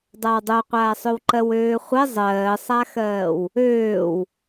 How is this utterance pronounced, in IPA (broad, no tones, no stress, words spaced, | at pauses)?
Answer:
dˤawdˤoqʷaːsˤøw ǃɜwøːχʷɛ zˤɜːsˤaxɜːw | øːw